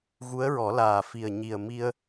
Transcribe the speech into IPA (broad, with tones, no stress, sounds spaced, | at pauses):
ɣ u˧˥ ə̯ ɹ ɔ˨˩˦ l aː˨˩ f i˨˩ ə̯ ɲ i˨˩ ə̯ m i˧ ə̯